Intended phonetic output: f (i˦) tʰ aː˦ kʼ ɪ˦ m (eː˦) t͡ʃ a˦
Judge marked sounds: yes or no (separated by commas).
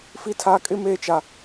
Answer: yes, yes